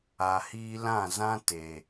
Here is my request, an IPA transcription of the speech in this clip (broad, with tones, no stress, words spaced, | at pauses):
a˨hiː˧lã˦˨zã˦ te˨